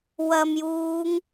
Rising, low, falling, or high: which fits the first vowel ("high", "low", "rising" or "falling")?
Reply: low